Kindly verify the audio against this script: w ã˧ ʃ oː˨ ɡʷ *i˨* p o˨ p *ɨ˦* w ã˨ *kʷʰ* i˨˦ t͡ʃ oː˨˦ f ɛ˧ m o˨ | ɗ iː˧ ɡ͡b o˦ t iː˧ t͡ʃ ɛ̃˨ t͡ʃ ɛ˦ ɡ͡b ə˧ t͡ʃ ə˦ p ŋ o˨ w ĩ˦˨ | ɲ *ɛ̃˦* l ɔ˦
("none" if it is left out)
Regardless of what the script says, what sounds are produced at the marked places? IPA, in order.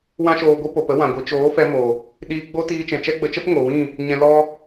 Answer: i˧, ə˦, ɡʷ, ɛ̃˧

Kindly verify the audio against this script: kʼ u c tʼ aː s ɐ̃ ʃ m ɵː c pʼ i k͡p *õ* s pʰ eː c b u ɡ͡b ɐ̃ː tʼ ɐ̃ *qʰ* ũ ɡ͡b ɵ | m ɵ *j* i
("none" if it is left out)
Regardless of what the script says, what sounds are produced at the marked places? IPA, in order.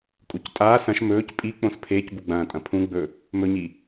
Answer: õ, pʰ, ɲ

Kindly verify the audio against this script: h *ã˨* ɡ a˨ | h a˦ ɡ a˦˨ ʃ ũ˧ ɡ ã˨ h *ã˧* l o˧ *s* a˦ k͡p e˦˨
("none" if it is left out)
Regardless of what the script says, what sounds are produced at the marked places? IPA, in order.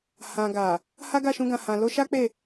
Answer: ã˨, ã˨, ʃ

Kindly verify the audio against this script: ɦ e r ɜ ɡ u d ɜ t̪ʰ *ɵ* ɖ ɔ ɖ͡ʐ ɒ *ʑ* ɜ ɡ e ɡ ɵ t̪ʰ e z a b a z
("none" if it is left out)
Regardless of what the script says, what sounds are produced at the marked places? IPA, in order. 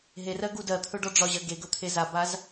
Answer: ɵ, ʑ

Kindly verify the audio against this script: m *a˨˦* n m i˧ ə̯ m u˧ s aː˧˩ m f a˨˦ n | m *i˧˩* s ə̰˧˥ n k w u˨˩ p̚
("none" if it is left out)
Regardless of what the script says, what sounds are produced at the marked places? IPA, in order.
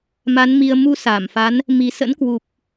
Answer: a˨˦, i˨˩

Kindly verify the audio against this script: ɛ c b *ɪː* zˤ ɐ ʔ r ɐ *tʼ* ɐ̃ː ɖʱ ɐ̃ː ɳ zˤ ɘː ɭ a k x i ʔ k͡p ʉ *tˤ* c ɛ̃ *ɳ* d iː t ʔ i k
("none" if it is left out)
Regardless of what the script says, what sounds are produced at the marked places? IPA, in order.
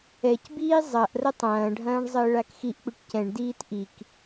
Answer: iː, tˤ, ʈ, ɳ

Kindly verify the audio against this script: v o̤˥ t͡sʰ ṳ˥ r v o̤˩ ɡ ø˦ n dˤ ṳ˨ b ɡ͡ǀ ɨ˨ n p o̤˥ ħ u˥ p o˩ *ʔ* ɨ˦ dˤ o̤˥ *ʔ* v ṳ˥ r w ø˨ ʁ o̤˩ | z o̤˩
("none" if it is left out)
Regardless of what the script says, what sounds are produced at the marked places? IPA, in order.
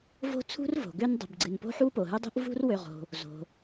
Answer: ɦ, ʔ

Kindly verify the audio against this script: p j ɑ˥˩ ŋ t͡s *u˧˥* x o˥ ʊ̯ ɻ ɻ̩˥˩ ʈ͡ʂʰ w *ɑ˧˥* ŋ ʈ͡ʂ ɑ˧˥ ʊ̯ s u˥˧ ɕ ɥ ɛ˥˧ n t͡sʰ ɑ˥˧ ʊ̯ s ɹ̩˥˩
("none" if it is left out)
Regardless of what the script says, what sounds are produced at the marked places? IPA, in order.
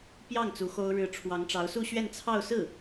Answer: u˧˥, ɑ˧˥

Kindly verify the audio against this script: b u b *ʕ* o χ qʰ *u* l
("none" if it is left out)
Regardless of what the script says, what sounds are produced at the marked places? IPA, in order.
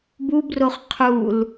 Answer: r, u

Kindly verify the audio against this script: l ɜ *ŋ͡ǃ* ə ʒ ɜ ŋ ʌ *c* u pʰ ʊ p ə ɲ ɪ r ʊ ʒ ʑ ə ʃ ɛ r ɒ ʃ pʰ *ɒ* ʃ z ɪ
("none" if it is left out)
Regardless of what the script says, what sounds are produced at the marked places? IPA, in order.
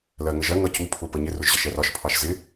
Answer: ŋ, c, ɑ

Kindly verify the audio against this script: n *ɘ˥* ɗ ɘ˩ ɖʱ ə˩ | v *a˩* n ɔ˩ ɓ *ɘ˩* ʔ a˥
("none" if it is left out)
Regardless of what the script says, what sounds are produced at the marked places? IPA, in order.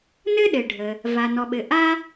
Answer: ɘ˥, a˩, ɘ˩

